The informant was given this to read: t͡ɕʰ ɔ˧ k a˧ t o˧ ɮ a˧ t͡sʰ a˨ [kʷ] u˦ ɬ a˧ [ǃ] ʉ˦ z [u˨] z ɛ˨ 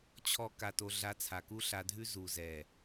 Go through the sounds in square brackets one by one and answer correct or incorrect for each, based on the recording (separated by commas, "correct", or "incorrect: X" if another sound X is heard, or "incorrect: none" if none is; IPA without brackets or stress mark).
incorrect: k, incorrect: dʱ, correct